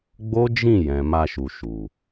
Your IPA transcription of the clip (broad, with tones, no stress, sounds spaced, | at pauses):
ɡ͡b o˦ d͡ʒ ĩ˦˨ j ɛ̃˨ m a˧ ʃ u˨ ʃ u˨